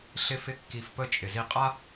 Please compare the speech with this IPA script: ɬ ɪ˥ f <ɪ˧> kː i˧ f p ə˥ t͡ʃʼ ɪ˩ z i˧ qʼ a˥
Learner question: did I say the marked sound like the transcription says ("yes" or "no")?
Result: no